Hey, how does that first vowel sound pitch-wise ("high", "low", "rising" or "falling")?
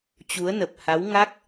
rising